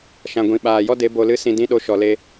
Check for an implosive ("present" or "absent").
present